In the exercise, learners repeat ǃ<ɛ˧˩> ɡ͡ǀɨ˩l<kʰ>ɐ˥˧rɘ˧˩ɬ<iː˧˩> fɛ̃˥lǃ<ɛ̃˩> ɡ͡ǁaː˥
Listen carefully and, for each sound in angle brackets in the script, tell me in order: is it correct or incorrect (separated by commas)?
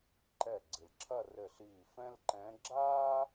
correct, incorrect, correct, incorrect